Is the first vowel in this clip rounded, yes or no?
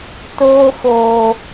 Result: yes